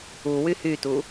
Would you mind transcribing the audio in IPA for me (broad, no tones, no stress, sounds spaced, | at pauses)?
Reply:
u w y h y t u